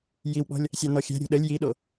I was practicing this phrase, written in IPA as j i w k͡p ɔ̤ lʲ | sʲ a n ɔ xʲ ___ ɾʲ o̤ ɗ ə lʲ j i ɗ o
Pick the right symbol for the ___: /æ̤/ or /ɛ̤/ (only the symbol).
æ̤